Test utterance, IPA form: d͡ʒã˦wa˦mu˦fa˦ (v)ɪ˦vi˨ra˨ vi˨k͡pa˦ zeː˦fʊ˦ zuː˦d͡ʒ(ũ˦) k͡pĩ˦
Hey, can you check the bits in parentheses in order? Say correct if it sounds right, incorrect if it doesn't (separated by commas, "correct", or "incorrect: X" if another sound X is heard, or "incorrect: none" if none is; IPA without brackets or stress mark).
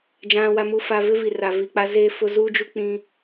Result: correct, incorrect: u˦